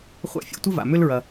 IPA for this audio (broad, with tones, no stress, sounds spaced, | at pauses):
χʷ a̰˦ fʲ o̰˦ tʷ ə˥ v a̰˩ m ʏ˦ l ɹ ɐ˨